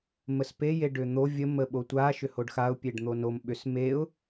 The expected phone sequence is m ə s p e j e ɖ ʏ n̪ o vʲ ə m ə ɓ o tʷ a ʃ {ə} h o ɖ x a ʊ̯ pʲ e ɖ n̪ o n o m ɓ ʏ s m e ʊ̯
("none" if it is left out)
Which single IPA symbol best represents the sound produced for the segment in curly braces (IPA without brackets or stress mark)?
ʏ